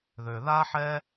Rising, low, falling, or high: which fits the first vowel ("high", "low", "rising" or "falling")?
low